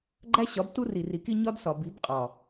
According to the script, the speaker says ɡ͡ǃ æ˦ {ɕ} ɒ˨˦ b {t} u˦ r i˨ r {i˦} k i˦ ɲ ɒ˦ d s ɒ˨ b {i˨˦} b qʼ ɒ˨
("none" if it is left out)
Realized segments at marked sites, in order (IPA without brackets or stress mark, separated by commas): ɕ, t, i˨, i˨˦